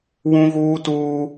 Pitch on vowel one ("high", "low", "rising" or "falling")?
high